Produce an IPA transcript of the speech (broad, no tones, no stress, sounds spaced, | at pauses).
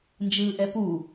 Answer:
n d͡ʒ ɯː ʔ ɛ p u